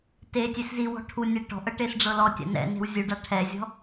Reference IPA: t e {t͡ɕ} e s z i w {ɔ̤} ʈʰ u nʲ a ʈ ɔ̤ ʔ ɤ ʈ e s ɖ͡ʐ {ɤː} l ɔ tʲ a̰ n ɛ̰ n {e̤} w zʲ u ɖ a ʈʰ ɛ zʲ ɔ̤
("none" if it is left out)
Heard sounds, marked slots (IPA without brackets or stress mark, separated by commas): tʲ, ɔ̤, ɤ, e̤